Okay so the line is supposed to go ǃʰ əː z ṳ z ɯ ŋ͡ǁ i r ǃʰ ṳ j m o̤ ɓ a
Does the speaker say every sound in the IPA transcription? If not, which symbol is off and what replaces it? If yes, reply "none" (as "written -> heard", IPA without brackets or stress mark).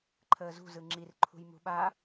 o̤ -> ṳ